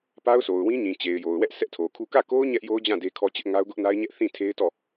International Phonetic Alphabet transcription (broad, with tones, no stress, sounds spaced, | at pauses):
p a˦ ʊ̯ s o˨ ʊ̯ w ĩ˦ ɲ ĩ˨ t͡ɕ e˨ ɪ̯ j o˨ ʊ̯ w ɛ˦ ʔ s ɛ˦ ʔ tʰ o˨ kʰ u˦ k ä˦˨ k o˦ ʊ̯ ɲ ɛ˦ ʔ j o˦ ʊ̯ d͡ʑ ã˦˨ d e˦ kʰ ɔ˦ t͡ɕ ɪ˦ ʔ ŋ a˦ ʊ̯ ɡ ʊ˦ ʔ n a˦ ɪ̯ ɲ ɛ˦ ʔ θ ĩ˦˨ tʰ e˦ ɪ̯ t ɔ˦˨